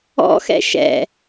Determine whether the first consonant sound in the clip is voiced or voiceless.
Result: voiceless